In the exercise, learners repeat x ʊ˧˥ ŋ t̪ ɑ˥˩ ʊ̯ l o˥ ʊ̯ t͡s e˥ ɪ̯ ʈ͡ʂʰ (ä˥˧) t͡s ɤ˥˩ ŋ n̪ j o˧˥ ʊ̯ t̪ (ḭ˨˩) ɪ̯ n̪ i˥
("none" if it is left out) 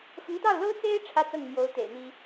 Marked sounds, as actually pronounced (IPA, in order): ä˥˧, ḛ˨˩

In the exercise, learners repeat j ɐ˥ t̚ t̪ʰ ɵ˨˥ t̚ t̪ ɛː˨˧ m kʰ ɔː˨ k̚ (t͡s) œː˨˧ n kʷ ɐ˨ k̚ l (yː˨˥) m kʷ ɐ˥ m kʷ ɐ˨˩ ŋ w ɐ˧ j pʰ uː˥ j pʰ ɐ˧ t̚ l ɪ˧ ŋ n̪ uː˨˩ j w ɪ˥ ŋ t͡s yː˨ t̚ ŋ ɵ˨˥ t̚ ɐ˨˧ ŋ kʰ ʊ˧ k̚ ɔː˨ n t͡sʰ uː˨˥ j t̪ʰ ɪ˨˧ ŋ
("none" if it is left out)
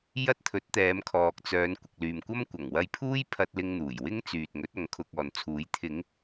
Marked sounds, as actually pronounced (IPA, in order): t͡s, yː˨

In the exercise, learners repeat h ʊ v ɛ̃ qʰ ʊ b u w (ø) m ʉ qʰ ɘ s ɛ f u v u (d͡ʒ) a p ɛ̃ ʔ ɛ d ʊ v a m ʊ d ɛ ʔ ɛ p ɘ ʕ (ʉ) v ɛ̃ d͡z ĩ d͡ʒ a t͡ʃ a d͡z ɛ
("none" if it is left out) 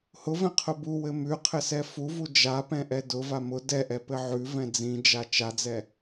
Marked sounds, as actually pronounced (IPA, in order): ɘ, d͡ʒ, ʉ

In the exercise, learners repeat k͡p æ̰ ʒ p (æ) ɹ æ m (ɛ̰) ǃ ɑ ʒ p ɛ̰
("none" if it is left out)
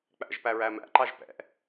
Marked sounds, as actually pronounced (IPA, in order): æ, æ̰

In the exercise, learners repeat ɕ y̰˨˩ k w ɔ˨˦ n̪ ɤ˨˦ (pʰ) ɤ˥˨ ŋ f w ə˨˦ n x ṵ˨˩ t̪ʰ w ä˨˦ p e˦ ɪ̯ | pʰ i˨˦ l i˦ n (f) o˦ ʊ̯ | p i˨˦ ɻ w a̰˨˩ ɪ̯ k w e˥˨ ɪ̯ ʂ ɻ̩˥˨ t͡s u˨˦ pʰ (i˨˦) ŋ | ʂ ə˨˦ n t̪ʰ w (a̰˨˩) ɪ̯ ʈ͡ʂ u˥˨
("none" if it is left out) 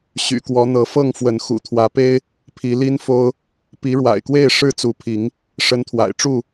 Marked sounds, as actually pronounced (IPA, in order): f, f, i˨˦, a̰˨˩

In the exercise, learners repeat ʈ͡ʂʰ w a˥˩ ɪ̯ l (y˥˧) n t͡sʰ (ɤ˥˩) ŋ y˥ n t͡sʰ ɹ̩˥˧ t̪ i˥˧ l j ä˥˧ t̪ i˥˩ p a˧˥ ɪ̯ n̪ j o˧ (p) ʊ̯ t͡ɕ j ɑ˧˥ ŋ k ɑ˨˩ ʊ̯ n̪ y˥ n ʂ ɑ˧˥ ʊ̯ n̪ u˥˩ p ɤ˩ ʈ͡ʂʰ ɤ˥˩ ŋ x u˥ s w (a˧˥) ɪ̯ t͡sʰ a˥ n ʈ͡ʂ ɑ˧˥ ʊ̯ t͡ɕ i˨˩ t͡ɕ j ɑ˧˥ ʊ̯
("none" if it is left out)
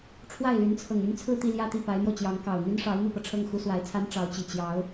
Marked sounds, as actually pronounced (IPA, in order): y˧˥, ɤ˨˩, none, a˧˥

